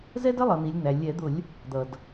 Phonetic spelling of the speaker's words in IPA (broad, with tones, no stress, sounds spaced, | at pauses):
z ɛ˥ d ə˥ lˠ ʌ˩˧ n̪ i˩˧ lʲ n̪ æ˩ lʲ ɛ˧˩˧ d̪ ʊ˧˩˧ lʲ | d̪ ʌ˩ d